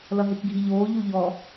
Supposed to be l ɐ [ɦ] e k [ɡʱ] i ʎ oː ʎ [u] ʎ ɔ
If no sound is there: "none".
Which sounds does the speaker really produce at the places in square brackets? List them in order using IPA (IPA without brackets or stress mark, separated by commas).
ɦ, ɡʱ, u